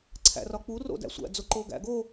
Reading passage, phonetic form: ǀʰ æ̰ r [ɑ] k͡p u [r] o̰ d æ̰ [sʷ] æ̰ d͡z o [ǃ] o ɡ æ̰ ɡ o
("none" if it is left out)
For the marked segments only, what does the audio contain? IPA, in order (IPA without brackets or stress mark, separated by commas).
ɒ, r, sʷ, ǃ